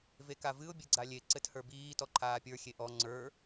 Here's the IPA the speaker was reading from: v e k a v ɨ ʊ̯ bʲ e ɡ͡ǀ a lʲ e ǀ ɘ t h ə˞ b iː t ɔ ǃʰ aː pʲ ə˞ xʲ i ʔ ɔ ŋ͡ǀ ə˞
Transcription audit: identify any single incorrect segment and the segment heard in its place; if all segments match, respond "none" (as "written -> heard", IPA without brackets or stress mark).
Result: i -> e